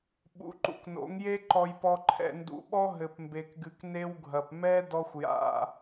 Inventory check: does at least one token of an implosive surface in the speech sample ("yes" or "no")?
yes